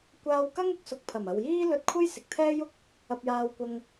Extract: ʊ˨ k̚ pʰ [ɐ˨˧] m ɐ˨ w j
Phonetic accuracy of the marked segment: incorrect: ɐ˨˩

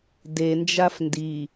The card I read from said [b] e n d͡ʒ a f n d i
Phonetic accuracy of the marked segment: incorrect: d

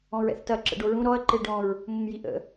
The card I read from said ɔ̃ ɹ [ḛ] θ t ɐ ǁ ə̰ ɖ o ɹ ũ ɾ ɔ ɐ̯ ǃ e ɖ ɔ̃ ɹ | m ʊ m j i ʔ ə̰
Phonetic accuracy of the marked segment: incorrect: ɛ̰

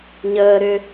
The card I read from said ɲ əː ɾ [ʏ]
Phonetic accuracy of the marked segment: correct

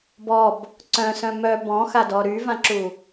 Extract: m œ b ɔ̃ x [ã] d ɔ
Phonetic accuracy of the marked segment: incorrect: a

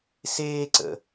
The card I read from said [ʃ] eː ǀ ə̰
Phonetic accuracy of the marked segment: incorrect: s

